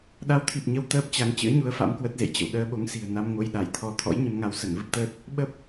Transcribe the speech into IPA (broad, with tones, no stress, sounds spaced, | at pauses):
ɗ a˧ w t̪ʰ i˨˩ p̚ ɲ ə˨˦ w t̪ əː˦˥ p̚ t͡ɕ a˨˦ ŋ t͡ɕ ɨ̰˧˥ ə̯ ɲ u˧ ə̯ f a̰˧˥ m k w ə˦˥ t̚ z ḛ˧˨ j t͡ɕ ə̰˧˨ w ɗ əː˧ ɓ o˨˦ ŋ s i̤˨˩ ə̯ n a˧ m ŋ o˧ j ɗ a˧˩ j t̪ʰ ɔ˧ t̪ʰ ɔ̰˧˥ j ɲ ə˧ m ŋ a˨˦ w s ə˧˩ n v ɨ˦˥ p̚ t̪ əː˦˥ t̚ | ɓ ə˦˥ p̚